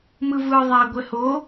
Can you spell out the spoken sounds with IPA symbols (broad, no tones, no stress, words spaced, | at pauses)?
mɯvɯ ðˤa ɡʷɛho